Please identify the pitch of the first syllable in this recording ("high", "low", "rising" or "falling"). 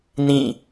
falling